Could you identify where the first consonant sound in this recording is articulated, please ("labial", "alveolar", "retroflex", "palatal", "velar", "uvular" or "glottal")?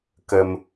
velar